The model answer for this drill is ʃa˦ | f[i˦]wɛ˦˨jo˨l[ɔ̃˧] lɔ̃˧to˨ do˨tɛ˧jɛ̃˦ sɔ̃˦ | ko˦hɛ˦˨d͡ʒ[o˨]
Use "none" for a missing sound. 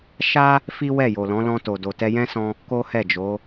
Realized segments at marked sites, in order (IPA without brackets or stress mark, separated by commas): i˦, ɔ̃˨˦, o˨˦